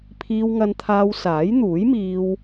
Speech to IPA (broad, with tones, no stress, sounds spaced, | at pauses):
pʰ iː˧ w ŋ ɐ˧ n t̪ʰ aː˧ w s aː˨˥ j n̪ uː˨˥ j m iː˧ w